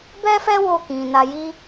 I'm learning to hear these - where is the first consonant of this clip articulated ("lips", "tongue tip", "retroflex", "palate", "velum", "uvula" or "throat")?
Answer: lips